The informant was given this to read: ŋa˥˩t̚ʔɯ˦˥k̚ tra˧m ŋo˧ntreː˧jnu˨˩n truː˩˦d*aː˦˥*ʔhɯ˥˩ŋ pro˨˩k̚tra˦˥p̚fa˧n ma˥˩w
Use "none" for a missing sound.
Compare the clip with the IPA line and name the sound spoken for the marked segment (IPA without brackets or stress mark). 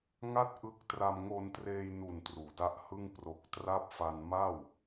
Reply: a˦˥